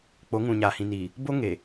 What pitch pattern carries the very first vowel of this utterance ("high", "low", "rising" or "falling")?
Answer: rising